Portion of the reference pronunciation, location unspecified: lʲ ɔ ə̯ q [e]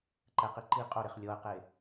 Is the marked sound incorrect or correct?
correct